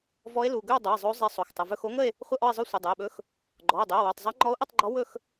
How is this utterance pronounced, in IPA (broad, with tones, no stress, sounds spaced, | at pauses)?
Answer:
v ɔ˧˥ e̯ l u˩˧˩ ɡ ɵ˥˧ o̯ dˤ u˩˧˩ e̯ zˤ o˧˥ zˤ e˧˥ sˤ o˩˧˩ x tˤ ə˩˧˩ v ɵ˥˧ x o˧˥ ŋ ə˥˧ e̯ | χʷ ə˥˧ ʔ ɔ˥˧ e̯ zˤ ɵ˥˧ sʷ ə˩˧˩ dˤ o˩˧˩ e̯ ɓ ɵ˧˥ x | ɡ͡ǃ ɔ˩˧˩ o̯ dˤ ɵ˩˧˩ o̯ w u˩˧˩ tˤ zˤ e˧˥ ŋ͡ǃ ɔ˧˥ o̯ ʔ ə˥˧ tˤ ɡ͡ǃ ɔ˧˥ w ɵ˥˧ x